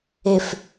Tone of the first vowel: low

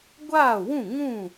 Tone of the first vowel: falling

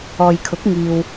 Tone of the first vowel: low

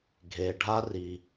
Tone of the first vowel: low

